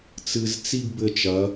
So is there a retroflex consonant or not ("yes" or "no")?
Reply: no